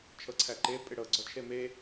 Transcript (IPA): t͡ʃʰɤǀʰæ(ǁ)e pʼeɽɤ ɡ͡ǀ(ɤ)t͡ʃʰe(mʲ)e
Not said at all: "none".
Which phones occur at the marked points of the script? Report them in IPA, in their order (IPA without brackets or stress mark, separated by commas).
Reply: ǃ, ɔ, m